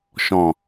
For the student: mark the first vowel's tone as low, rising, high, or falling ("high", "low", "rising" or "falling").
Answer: low